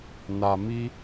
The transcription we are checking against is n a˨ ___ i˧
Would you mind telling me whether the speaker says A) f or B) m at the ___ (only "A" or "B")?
B